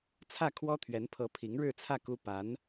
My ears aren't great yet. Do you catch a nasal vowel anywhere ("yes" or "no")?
no